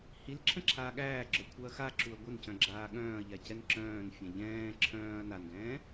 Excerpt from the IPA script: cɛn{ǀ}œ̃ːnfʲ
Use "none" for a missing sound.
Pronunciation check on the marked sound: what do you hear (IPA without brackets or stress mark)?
ǁ